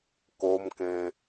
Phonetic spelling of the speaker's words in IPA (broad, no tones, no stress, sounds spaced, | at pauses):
k o m k ẽ